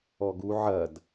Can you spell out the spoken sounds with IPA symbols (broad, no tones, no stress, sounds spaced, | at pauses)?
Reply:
ɔ ɡ u ʕ ɐ d